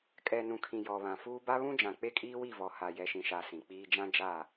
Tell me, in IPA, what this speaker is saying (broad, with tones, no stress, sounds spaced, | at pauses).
kʼ ɛ˨ n ũ˨ kʰ ĩ˨ j ɔ˨ β ã˨ f uː˦ b a˦ β ũ˦ d͡ʒ ã˨ k͡p e˦ kʼ iː˦ w i˦˨ v ɔ˨ h a˨ j ɛ˨ ʃ ĩ˨ ʃ a˨ s ĩ˨ k͡p iː˦ d͡ʒ ã˦ d͡ʒ a˦˨